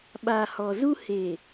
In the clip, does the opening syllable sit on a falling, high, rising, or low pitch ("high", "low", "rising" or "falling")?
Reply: low